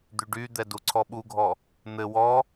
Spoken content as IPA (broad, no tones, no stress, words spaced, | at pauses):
d̪yɖyd̪ɛ duǀʰɔɓuɡʱɔ | n̪ɘ wɔ